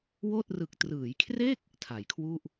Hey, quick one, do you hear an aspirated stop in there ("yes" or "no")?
yes